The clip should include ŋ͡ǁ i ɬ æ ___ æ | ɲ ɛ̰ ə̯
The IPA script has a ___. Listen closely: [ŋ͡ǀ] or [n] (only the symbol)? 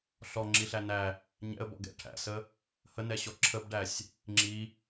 n